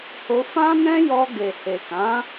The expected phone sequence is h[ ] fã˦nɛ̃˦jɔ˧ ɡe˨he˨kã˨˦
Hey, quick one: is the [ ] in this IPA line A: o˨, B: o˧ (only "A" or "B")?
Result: B